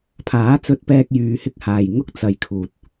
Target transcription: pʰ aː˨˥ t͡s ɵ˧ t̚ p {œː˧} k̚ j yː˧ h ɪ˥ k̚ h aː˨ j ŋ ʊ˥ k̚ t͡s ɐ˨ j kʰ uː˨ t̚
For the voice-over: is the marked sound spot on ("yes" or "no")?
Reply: no